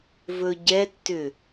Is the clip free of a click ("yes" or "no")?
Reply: yes